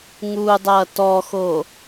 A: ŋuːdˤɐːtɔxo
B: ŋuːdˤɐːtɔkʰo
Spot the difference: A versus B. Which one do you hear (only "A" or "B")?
A